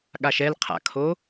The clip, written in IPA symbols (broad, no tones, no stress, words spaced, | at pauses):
ɠaʃɛl qʰa̰kʰo